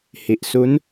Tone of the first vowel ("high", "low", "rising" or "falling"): low